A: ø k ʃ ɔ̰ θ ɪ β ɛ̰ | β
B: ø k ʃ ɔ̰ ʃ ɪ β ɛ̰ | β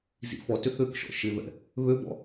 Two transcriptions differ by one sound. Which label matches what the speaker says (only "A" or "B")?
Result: B